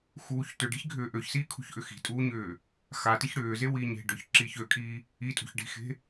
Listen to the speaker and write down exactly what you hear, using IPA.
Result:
x uː ç t ø ɖ i̤ ç ɡʱ ʏː ʔ ø ç s iː kʰ ṳ ç ʔ ʏ x i̤ tʼ uː ɲ ʏː | x a t i ç ɽ ʏː z e w iː ɲ e̤ ɖ ʏː ç ǁ iː ç ø kʼ iː | i tʼ ṳ ç ɖ i̤ x e̤

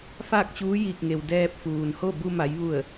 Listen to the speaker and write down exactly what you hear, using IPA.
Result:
f aː˥˨ k̚ t͡ɕ uː˧˥ j iː˧˩ k̚ ŋ e˩ w d ɛː˧ p̚ f uː˩ n h o˥˨ b u˧ m a˩˧ j ʋ u˧˩ ə̯

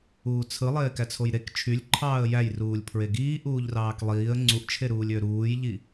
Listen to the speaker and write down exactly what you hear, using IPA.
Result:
uː t͡sʰ ɯ lˠ eː k æ t͡sʰ o j ɾ e k t͡ʃʰ y lʲ ǃʰ ɑː ə̯ j æ j r uː lʲ pʰ ɹ e ɡ iː ʔ uː ʎ r ɑː k lˠ iː ə̯ ŋ͡ǀ u ʔ t͡ʃʰ e ɾ uː lʲ ø ɾ uː j ʎ i

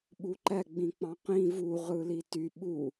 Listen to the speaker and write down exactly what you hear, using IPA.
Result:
ɓ u ǃ æ ɡ͡b ĩ k͡p ɑ̃ q ĩ v u ʁ ɯ l i t y ɓ u

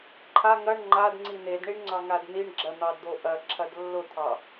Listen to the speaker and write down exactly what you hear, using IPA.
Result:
ǃʰ a ŋ ɐ ɳ ŋ͡ǃ a d ŋ͡ǀ i n̪ e d ɳ i ɳ ŋ͡ǀ ɑ ŋ a d n̪ i ɳ ɡ͡ǁ ɐ n̪ ɑ d d̪ o ʔ ɐ ǁʰ ɐ d lː ʊ t̪ʰ ɑ

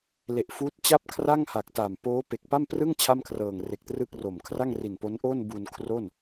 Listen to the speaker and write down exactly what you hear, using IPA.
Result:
l e˨˩ ʔ f uː˦˥ t̚ t͡ɕ a˥˩ p̚ kʰ r a˥˩ ŋ h a˨˩ k̚ t a˨˩ m p oː˦˥ p e˨˩ k̚ p a˥˩ m p r ɯ˥˩ ŋ t͡ɕʰ a˥˩ m kʰ r ɤː˨˩ ŋ r e˨˩ k̚ t r ɯ˥˩ k̚ r o˨˩ m kʰ r a˥˩ ŋ r i˨˩ n p o˦˥ n ʔ oː˥˩ n b u˧ n kʰ r o˥˩ n

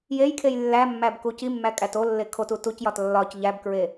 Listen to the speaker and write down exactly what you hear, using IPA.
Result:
j e j kʰ e j lː æ mː æ b k u c i mː æ kʼ æ t o lː e kʰ o t u t u c j ɒ t lː ɒ c ʎ æ b k ɹ e

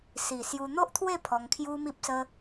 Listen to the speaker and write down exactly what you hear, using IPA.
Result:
s i˨˩ s j u˧ n̪ o˦ ʔ t̪ʰ w e˥˧ pʰ ɔ˧ ŋ kʰ j u˦ m i˦ p̚ s ə˦

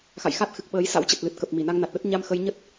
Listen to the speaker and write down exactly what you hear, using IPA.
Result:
x a̰˧˨ j x a˦˥ t̚ x ɨ˨˩ k̚ ɓ əː˨˦ j s a̰˧˥ w t͡ɕ ə˨˩ t̚ l ɨ˨˩ t̚ k ə˨˩ p̚ m i˧˩ n a˧ ŋ n a˨˩ t̚ ɗ ə˦˥ t̚ ɲ a˧ m x ə˧ j ɲ ə˦˥ t̚

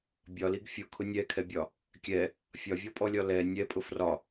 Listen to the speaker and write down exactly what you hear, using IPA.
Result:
bʲ ɒ l i ɡ fʲ ʊ kʰ ʊ nʲ ɛ kʰ ɛ bʲ ɒ | kʲ ɛ | fʲ ɒ vʲ ɔ pʼ ɔ lʲ ɒ l ɛ nʲ ɛ pʼ ʊ f r ɒ

